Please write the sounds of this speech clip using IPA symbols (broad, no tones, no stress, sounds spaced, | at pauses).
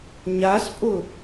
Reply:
ɲ a s pʼ ʊ